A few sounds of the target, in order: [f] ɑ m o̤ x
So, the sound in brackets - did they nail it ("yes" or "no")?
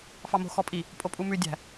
yes